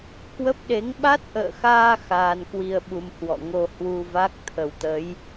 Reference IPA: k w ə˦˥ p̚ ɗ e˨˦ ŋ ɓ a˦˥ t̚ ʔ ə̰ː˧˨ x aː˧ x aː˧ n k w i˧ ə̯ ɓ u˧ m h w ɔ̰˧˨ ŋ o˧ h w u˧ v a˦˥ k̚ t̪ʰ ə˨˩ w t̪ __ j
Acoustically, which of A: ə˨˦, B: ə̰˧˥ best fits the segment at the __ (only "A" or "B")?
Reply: A